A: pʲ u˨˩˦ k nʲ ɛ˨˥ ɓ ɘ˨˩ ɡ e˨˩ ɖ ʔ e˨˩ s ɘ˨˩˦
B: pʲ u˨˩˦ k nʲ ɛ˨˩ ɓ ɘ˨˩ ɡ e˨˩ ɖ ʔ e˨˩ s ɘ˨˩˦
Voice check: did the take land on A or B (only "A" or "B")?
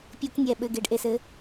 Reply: B